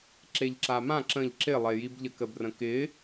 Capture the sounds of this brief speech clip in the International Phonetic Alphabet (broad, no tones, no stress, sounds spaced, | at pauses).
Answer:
ǁ e ʎ ǁ a m ã ǁ ə̃ ʎ ǁ ɪ lˠ e j i b ʎ ə k ə b r ə̃ k ɪ